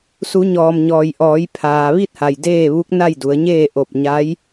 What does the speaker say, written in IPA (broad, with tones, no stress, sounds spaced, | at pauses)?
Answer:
s u˩˧ ɲ ɔː˩ m ɲ ɔː˩ j ʔ ɔː˩˧ j pʰ aː˩ ʋ i˥˨ t̚ h a˩ j d eː˥˨ ʋ u˧˥ k̚ n a˥˨ j d u˩˧ ə̯ ɲ eː˥˨ ʔ o˧˩ p̚ ɲ a˧˥ j